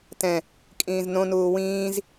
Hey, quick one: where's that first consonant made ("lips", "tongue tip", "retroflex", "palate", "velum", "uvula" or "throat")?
tongue tip